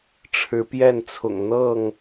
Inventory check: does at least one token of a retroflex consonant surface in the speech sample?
yes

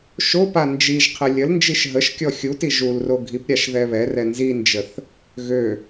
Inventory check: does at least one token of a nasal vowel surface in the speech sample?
no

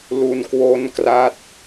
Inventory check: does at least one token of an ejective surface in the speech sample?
no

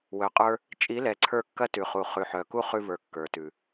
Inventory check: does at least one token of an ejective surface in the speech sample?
yes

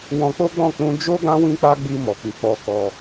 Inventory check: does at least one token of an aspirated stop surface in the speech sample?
no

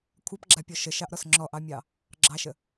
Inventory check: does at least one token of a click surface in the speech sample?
yes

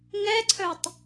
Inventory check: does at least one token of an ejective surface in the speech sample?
no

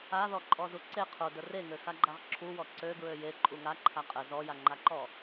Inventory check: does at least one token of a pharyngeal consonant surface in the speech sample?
no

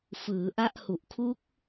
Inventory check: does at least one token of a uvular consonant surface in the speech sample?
no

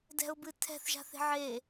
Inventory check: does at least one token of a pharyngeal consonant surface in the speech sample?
yes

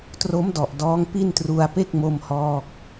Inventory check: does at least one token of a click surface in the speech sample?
no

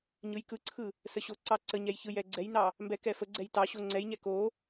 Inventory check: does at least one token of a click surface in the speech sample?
yes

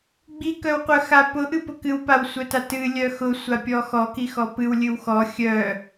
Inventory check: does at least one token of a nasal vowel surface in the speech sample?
no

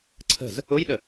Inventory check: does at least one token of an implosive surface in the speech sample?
yes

